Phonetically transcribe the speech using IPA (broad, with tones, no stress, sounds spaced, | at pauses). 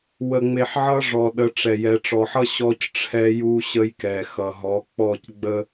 w ə˨ ŋ͡m e˨ ħ ʕ ʌ˦ ʐ ɔ˨ ɗ ə˨˦ ʈ͡ʂ ɛ˨ j ɛ˨ ʈ͡ʂ ɔ˨ ħ ʌ˦ ɕ ɔ˦ c ʈ͡ʂʰ ɛ˦ j u˦ ɕ ə˦ j k ɛ˨ x ʌ˨ ɦ ɔ˨˦ k͡p ɔ˦˨ c ɡ͡b ə˦